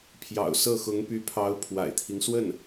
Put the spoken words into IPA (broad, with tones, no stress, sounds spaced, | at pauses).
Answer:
pʰ j ɑ̰˨˩ ʊ̯ s ɤ˥˩ x ʊ˧˥ ŋ p y˧˥ pʰ ɑ˧˥ ʊ̯ pʰ w a̰˨˩ ɪ̯ t̪ʰ i˦ ŋ s w ə˥˩ n